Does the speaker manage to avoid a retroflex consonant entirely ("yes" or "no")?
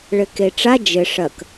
no